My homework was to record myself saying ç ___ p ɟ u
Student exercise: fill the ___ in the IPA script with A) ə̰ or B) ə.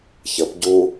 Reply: B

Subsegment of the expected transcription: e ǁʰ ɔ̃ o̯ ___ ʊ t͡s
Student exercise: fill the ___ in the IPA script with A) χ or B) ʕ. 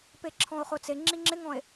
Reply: A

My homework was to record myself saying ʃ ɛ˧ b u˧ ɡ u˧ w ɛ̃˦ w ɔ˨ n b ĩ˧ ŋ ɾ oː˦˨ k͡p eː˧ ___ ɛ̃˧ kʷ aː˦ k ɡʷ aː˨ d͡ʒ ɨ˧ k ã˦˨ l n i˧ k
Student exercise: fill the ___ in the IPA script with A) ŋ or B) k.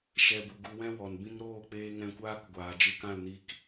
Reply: A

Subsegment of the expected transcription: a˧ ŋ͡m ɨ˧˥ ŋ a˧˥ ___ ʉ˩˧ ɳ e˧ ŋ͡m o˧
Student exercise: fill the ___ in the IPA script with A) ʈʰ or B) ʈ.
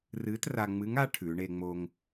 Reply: A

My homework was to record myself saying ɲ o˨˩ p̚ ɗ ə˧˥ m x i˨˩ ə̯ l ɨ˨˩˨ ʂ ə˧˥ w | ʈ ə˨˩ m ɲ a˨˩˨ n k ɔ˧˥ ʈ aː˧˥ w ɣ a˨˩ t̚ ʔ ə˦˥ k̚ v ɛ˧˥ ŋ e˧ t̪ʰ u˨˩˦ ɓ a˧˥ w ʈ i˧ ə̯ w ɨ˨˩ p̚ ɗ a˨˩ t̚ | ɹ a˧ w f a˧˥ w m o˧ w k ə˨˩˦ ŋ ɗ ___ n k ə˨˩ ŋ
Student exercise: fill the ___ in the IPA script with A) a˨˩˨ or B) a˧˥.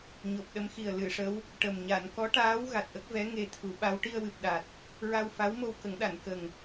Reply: A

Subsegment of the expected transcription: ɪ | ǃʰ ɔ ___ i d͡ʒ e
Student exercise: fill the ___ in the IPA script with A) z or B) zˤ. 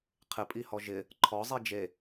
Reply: B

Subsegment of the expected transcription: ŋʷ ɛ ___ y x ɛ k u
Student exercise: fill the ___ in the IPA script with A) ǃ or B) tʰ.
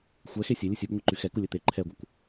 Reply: A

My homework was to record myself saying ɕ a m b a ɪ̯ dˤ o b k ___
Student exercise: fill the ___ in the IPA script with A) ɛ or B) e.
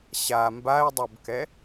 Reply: A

